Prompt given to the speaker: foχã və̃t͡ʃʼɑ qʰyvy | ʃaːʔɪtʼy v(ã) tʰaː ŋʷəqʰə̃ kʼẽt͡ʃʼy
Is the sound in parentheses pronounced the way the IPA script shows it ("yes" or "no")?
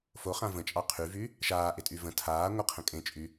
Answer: no